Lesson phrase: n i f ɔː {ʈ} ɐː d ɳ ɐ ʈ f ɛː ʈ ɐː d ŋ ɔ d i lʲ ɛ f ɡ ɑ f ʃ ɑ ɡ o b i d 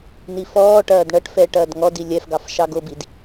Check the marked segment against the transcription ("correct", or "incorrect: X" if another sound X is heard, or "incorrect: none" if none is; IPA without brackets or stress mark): correct